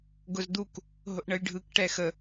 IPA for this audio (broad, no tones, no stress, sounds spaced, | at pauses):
ɡ ʊ z d̪ u k | ɦ ʊ ʔ ɳ ə j ɖʱ ɯ k ʈ ɛ x ə